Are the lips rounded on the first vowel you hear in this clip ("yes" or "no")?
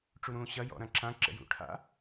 yes